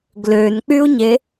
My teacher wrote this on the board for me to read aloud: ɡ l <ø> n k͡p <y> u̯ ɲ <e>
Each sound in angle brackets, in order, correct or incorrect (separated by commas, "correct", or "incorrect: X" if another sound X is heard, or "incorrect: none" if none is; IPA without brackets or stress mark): correct, correct, correct